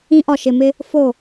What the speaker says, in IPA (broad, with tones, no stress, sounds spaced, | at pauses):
ĩ˦ ʔ ɒ˦˨ ʃ ɪ˦˨ m ɪ˦ | f o˦˨